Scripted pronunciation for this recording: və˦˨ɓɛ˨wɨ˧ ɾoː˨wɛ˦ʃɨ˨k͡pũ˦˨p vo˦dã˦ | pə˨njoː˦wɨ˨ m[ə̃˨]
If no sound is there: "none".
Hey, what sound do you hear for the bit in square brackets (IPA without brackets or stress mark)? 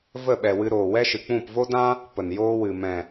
ɛ̃˨